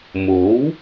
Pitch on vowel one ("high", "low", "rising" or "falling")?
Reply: rising